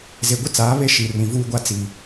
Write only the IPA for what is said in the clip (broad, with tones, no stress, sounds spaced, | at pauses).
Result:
z e˨ ɡʷ ɪ˦ t͡s aː˨˦ β e˦ ʃ i˨ r ĩ˨ v uː˦ ɡʷ a˦ t͡s i˨